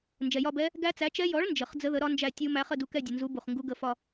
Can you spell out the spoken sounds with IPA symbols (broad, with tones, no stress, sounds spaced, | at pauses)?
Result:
n d͡ʒ ɛ˩ j ɒ˦˨ b ɛ˧˥ | ɡ æ˧˥ t͡s æ˩˥ t͡ʃ ɛ˧˥ j ɔ˩˥ ɭ n d͡ʒ ə˩ χ d͡z ə˧˥ ð ə˩˥ ɾ ɒ˧˥ n d͡ʒ æ˦˨ tʲ u˧˥ m æ˩˥ χ ə˦˨ d u˩˥ k ɛ˦˨ dʲ ə˩ n z u˩˥ b u˩ χ ŋ ɡ u˧˥ ɡ ə˦˨ f ɒ˦˨